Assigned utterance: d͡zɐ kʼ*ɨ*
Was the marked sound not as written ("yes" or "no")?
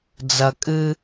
no